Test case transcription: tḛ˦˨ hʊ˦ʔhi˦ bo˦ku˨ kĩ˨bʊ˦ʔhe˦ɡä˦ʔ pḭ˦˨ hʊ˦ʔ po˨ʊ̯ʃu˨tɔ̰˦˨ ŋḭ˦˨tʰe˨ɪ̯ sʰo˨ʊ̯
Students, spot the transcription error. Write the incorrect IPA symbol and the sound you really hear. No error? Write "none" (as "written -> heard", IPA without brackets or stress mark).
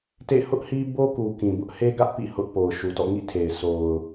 none